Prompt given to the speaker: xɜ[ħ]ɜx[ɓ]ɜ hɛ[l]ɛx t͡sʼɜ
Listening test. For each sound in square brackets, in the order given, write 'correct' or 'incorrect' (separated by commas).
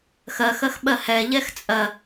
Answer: incorrect, correct, incorrect